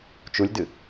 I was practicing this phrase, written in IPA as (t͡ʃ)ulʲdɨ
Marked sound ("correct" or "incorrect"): correct